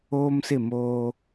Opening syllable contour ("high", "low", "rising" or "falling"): high